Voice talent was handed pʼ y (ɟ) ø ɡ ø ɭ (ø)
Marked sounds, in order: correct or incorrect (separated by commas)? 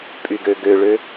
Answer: incorrect, correct